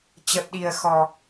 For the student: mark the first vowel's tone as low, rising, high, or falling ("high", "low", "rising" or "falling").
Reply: low